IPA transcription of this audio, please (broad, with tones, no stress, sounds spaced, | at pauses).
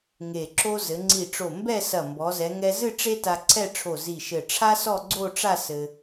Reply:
ŋ e˧˩ ǁ o˥ z ɘ˩˧ ŋ͡ǀ i˧˩ ʈ͡ʂ o˧˩ m b ɛ˥˧ s ɐ˧˩ m b ɔ˩˧ z ɛ˩˧ ŋ ɛ˧ z ɨ˥˧ ʈ͡ʂ e˥ t a˧ ǀʰ ɛ˥˧ ʈ͡ʂʰ o˧˩ z i˧˩ ʃ ɘ˧˩ ʈ͡ʂʰ a˥ s ɔ˥˧ ɡ͡ǀ o˥˧ ʈ͡ʂ a˥˧ s ɘ˧